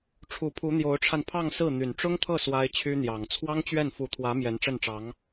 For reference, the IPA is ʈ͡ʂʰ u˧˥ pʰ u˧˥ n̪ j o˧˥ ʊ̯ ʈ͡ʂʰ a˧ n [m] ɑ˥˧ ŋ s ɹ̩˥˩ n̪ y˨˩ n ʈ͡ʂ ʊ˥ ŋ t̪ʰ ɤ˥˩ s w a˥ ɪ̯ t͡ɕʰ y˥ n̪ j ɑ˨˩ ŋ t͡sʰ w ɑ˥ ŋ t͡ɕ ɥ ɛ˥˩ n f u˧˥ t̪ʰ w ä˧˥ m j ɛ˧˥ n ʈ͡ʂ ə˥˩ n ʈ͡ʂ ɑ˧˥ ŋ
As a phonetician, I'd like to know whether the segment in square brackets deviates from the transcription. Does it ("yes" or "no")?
yes